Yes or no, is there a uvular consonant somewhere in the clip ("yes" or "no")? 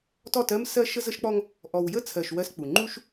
no